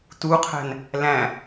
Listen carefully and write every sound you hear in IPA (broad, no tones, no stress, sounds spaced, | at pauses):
t u qʰ æ̤ n | l æ̃